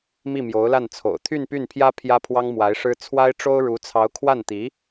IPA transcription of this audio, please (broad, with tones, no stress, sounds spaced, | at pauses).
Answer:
m i˥˩ m j o˧˥ ʊ̯ l a˥˩ n t͡sʰ o̰˨˩ ʊ̯ t̪ʰ y˥˧ n p y˥˩ n pʰ j ä˥ pʰ j ä˥ pʰ w ɑ˥ ŋ m w a˧˥ ɪ̯ ʂ ɻ̩˥ t͡sʰ w a˥ ɪ̯ ʈ͡ʂ o˥ ʊ̯ ɻ u˧˥ t͡sʰ ɑ˧˥ ʊ̯ kʰ w a˥˩ n t̪ i˧˥